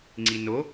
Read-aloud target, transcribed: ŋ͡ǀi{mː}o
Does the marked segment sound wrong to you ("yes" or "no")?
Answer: yes